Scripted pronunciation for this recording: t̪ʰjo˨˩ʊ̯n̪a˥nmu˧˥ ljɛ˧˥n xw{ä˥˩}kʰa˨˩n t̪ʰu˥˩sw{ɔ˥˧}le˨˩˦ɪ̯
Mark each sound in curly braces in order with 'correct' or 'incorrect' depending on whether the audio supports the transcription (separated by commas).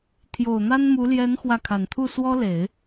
correct, incorrect